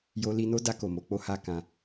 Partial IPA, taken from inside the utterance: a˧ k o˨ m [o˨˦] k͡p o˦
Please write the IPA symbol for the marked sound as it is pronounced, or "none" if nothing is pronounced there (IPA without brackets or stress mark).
o˨˦